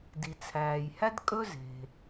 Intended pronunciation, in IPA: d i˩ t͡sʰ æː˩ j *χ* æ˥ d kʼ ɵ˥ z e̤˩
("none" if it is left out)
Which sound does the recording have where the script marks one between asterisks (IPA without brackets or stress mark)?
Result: h